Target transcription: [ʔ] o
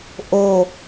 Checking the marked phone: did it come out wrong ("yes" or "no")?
no